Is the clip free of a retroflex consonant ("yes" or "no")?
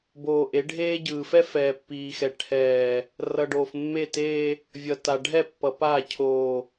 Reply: no